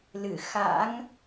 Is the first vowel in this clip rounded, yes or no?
no